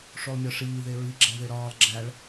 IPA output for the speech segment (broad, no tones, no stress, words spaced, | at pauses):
ʂolˠmʲɒʂiː ðeɹi ɡ͡ǁæðeɾɒːlˠ ɡ͡ǁæɭ